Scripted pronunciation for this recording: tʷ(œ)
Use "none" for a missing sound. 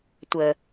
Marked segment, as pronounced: ə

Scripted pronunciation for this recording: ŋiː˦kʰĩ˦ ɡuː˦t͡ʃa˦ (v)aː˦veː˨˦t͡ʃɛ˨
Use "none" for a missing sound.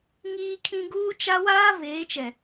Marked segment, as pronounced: w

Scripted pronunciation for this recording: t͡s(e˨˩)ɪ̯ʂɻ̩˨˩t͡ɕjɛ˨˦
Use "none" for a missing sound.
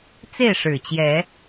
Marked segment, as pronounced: e˥˨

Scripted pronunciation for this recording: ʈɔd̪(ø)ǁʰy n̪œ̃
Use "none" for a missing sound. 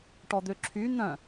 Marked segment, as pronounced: ø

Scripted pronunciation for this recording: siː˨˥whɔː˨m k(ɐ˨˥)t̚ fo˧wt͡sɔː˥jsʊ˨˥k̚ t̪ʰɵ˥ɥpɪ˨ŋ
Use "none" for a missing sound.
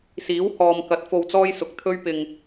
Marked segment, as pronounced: ɐ˨˥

